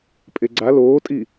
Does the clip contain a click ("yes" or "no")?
yes